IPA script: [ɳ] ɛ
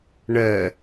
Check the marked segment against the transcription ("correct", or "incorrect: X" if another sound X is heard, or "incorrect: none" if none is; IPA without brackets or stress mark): correct